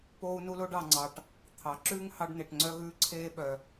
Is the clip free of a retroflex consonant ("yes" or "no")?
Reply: no